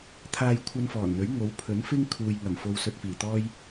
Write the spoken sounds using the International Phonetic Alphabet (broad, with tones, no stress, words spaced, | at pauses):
t̪ʰaː˧jkʷʰɐ˧nfɔː˨˩nn̪ɵ˨˥ɥ ŋo˨˥w pʰɵ˨˥nfɪ˥ŋ kʰuː˨jŋɐ˨˩mfo˧w sɵ˧t̚fiː˨˩t̪ɔː˥j